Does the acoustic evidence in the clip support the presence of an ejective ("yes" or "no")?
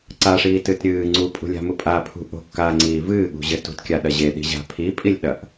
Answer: yes